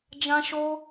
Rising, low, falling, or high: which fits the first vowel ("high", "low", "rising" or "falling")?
high